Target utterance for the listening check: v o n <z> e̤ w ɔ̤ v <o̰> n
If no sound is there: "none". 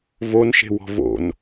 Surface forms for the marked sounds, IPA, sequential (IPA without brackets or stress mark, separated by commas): ʃ, o̰